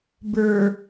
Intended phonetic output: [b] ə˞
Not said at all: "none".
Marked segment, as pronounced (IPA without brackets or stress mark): b